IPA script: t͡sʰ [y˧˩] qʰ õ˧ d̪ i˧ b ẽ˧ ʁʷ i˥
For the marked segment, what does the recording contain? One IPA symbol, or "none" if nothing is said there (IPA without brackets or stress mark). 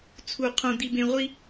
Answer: u˧˩